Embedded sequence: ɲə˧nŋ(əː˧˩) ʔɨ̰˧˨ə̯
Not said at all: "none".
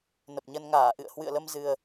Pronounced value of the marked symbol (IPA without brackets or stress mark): aː˧˩